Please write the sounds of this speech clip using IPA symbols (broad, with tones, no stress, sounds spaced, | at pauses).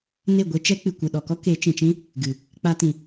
n e˦˨ ɡʷ e˧ t͡ʃ ɛ˦ k͡p ɨ˨ kʷ ɨ˨ ɗ ɔ˨ k ɔ˦ k e˨˦ t͡ʃ ĩ˨ t͡ʃ ĩ˦ | ɡ ɨ˨ | k͡p a˧ t ĩ˨